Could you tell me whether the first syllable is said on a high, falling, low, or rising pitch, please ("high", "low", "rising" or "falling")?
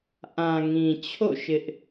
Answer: low